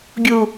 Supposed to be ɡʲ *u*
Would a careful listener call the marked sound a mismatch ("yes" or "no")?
no